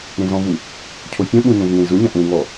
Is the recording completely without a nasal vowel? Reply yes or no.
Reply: no